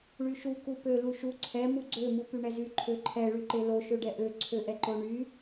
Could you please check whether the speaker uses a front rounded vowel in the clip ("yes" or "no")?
yes